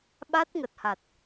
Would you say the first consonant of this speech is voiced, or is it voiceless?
voiced